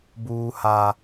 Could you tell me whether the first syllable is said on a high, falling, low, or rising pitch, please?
high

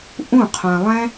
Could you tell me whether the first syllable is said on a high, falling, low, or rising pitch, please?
falling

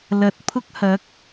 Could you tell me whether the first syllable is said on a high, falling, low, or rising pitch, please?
rising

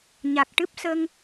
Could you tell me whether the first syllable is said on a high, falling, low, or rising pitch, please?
low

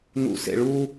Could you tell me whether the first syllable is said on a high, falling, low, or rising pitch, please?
low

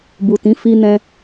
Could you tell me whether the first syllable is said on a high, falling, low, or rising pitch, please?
low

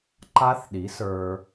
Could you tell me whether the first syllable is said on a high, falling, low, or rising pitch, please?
high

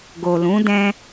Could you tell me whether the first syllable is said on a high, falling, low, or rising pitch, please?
low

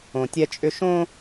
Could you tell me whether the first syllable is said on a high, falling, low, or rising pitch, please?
low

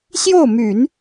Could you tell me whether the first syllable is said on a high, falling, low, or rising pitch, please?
falling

